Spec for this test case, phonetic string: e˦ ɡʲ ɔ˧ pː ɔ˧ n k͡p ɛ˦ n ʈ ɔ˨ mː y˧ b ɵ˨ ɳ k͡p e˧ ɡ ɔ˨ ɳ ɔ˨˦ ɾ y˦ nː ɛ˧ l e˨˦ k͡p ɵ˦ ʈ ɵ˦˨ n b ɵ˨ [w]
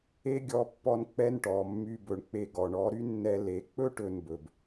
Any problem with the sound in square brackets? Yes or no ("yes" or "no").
yes